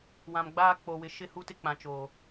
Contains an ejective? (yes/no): no